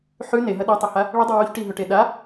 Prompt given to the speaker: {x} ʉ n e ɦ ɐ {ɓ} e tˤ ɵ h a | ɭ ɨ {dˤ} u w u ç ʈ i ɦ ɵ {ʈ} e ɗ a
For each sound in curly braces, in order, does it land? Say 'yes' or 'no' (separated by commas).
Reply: no, no, yes, yes